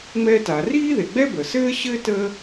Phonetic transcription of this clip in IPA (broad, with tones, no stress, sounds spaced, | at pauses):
ŋ͡m ɛ˥ t a˩ r iː˥ ð e˩ ɡ͡b ɛ˥ b ə˩ s ɘː˥ ɕ ɘː˥ t əː˥